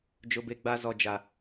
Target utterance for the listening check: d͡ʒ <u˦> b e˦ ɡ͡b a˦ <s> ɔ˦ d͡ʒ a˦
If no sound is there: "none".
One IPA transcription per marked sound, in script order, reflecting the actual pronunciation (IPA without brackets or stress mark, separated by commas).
ʊ˦, z